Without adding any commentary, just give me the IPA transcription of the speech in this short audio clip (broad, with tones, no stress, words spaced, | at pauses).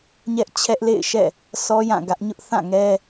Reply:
ɲɛ˦ʔ t͡ɕʰɛ˦ʔlḛ˦˨ɪ̯ʃɛ̰˦˨ | sʰɔ˦jã˦˨ ɡä˦ʔ ɲʊ˦ʔθã˦˨ŋɛ˦